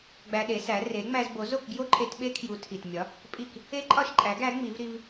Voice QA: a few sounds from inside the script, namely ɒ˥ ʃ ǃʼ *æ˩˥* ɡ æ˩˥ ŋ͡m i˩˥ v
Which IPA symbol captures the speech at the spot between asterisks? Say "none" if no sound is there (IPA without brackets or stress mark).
æ˩˥